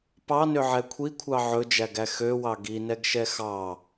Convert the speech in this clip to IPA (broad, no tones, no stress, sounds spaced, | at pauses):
p ɑ n ø ʕ ɛ kʷʰ i kʷʰ ɑ ʕ ɵ d͡ʒ æ ɡ æ x ø w ɑ ɡ i n ɛ ɡ ʃ ɛ x ɑ